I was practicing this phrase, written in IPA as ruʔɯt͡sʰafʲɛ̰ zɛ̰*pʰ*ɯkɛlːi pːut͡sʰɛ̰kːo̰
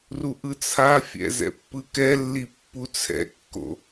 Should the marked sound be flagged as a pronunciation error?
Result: yes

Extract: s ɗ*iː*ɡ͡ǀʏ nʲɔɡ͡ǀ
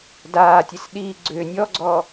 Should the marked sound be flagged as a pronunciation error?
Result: no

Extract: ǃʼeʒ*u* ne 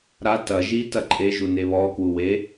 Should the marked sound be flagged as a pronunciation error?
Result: no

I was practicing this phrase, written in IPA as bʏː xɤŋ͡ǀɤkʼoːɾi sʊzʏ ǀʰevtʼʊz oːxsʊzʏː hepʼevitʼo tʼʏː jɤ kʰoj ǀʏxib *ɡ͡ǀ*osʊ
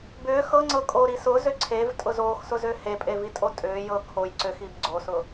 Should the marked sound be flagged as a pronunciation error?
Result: no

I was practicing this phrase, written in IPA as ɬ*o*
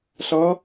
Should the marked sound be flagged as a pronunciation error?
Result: yes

